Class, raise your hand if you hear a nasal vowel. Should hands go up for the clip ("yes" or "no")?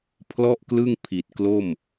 no